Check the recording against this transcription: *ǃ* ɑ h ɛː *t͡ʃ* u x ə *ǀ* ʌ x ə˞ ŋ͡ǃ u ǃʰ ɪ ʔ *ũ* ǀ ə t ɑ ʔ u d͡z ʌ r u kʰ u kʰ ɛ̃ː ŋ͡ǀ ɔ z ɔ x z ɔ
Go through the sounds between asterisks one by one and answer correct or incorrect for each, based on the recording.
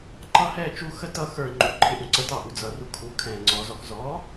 correct, correct, incorrect, correct

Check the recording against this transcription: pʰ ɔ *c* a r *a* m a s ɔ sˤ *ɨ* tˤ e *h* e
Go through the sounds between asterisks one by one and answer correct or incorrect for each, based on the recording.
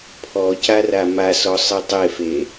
correct, correct, correct, incorrect

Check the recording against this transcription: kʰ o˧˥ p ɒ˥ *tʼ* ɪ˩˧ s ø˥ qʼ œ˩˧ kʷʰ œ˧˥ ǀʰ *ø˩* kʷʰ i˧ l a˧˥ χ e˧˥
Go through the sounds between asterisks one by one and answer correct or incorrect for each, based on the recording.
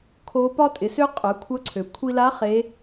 correct, correct

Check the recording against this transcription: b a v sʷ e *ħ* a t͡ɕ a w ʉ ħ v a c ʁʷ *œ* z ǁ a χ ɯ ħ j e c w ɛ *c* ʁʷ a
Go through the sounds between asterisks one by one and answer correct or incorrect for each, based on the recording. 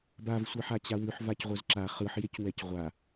correct, correct, correct

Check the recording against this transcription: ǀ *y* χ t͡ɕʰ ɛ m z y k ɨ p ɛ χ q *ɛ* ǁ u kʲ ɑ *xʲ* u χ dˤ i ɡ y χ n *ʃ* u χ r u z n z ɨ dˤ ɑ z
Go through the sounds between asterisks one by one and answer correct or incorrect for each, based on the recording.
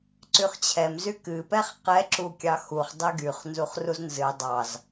correct, correct, incorrect, incorrect

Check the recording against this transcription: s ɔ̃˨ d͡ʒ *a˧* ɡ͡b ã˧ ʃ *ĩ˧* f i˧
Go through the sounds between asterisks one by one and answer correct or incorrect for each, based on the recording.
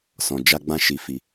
correct, incorrect

